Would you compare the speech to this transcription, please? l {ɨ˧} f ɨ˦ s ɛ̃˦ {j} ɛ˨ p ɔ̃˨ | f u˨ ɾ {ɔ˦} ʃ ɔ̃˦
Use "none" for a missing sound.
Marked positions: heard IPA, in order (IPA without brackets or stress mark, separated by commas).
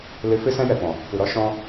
ɨ˨, j, ɔ˦